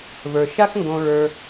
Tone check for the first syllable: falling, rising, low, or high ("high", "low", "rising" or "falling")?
low